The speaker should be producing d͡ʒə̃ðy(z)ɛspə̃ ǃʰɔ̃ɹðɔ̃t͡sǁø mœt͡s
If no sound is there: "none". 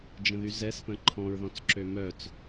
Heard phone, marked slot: z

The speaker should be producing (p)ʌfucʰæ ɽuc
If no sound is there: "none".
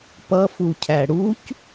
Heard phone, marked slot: p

